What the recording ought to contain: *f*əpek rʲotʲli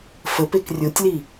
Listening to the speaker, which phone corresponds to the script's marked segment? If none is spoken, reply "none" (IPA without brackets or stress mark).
f